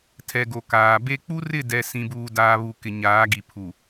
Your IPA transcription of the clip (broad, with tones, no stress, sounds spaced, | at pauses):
tʰ ɛ˨ ɡ o˨ k aː˨ b e˦ k͡p u˦ r ɪ˦˨ d ɛ˨ s ĩ˨ b uː˨ d aː˨ β u˨ k ɪ˨ ɲ aː˨˦ ɡ i˨ pʰ u˨